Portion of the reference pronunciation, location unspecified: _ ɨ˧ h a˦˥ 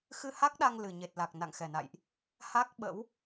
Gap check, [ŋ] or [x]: x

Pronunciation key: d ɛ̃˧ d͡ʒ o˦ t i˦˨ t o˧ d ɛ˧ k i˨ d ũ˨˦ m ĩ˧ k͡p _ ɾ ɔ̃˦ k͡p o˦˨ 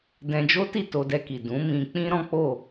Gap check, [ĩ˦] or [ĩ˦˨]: ĩ˦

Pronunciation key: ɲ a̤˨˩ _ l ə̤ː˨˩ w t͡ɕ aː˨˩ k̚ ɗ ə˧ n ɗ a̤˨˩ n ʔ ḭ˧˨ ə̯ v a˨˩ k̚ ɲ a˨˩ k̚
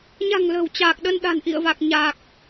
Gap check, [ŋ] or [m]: ŋ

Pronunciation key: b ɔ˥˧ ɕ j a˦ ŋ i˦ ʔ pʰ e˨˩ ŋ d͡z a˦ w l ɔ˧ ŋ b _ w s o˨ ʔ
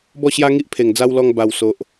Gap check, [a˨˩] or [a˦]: a˨˩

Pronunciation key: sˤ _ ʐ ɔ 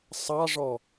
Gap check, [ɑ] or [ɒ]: ɑ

